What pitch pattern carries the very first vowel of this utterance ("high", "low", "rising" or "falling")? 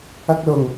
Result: high